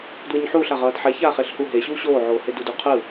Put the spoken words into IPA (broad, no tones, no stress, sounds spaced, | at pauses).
d w ɯ ɲ ħ uː ɬ a ʁ ʌː d ħ ɛ ç aː χ e ɬ h u ɦ e ɕ uː ɕ oː ʕ oː h e d u d u qʰ ɯ